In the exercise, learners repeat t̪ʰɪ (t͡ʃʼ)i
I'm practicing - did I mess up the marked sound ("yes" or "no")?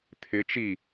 yes